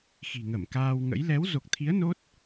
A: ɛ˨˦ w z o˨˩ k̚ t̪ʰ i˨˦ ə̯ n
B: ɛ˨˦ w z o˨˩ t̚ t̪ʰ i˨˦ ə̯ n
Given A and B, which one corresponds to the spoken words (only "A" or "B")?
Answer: A